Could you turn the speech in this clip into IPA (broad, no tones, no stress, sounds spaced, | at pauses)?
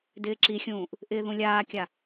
d ɪː ǁ i xʲ ũː ʔ | ʔ ɪː ð ũ lʲ aː kʲ a